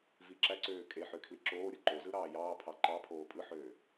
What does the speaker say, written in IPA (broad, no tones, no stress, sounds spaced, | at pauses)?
v i ǁ æ ǀ øː kʼ e ħ ø kʰ l i ǁ oː ɾʲ ɯ ǃ o z ɯ ɾ ɑː j ɑː pʰ ɑ ǃ ɑ pʰ oː pʼ ɯ ħ øː